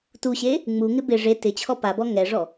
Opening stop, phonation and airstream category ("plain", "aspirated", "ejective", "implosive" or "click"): plain